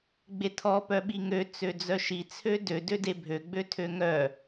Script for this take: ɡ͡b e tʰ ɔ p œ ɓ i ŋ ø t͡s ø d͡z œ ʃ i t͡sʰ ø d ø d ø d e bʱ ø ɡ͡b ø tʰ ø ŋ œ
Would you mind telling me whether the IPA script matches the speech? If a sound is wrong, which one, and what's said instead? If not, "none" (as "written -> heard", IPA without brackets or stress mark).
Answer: none